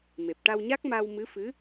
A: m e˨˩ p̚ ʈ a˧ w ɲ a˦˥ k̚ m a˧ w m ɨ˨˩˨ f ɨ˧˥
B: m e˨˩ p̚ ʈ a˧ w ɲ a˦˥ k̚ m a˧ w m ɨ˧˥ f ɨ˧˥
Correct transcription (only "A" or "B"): B